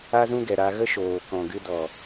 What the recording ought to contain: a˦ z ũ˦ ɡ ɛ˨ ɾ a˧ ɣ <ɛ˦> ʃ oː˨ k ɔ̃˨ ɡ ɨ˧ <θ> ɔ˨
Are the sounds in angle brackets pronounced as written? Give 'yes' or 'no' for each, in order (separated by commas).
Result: no, no